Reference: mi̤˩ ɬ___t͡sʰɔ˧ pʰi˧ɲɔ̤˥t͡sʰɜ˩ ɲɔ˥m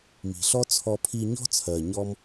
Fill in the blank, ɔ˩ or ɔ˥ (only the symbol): ɔ˥